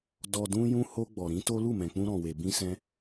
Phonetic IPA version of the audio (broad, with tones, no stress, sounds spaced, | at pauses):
d ɔ˨ d ũ˧ j ũ˧ h o˧ ɡ͡b ɔ˨ ɾ ĩ˨˦ t o˦ l u˦˨ m ɛ̃˨ k͡p ũ˧ ɾ ɔ̃˨ w e˨ b ĩ˧ s ɛ̃˧